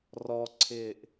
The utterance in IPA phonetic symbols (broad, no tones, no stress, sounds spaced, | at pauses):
r ɔ ǀʰ ɪː ʔ